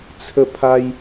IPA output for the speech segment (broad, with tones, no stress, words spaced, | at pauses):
t͡sʰə˥˧pʰa˦j